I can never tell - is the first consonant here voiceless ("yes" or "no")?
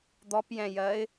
no